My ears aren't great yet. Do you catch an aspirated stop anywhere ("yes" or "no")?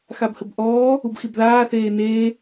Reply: no